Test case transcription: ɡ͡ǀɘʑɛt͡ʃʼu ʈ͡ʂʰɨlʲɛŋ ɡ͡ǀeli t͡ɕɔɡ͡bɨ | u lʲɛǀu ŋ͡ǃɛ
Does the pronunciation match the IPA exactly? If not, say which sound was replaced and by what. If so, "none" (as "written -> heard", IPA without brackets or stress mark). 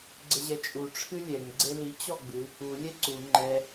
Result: none